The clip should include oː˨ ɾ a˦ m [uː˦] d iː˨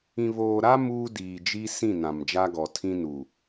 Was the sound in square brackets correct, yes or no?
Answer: yes